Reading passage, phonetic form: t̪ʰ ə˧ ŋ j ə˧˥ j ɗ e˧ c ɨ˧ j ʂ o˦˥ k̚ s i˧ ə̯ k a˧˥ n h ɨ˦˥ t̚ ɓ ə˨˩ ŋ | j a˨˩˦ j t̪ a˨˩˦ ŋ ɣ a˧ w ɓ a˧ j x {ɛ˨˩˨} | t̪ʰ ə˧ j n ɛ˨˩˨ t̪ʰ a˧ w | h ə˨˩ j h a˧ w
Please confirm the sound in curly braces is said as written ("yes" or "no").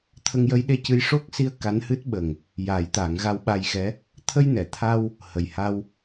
no